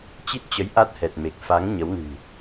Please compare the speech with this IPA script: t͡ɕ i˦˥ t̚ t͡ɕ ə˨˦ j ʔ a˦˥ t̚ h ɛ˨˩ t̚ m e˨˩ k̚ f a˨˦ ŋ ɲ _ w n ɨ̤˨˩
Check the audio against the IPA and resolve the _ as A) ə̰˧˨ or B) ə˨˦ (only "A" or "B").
B